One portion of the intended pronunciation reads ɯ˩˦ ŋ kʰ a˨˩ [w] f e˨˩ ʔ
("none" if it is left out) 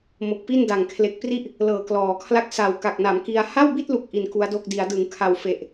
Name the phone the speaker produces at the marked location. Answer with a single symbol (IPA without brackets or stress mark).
w